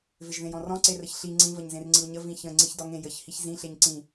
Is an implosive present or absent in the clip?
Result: absent